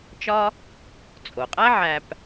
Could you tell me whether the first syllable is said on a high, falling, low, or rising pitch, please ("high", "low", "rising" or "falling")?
high